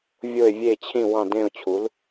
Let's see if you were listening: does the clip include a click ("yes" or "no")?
no